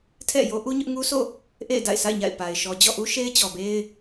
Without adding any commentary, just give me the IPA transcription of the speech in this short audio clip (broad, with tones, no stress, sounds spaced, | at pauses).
tʰ ɛ̰˦˨ j o˦ ʔ u˦ ɲ ʊ˦ ʔ ŋ u˦ s o̰˦˨ | ʔ ḛ˦˨ ɪ̯ d a̰˦˨ ɪ̯ sʰ a̰˦˨ ɪ̯ ɲ a̰˦˨ ɪ̯ p a˨ ɪ̯ ʃ ɔ˨ d͡ʑ ɔ̰˦˨ ʔ u˦ ʃ e˦ ɪ̯ t͡ɕ ɔ˨ b e˦ ɪ̯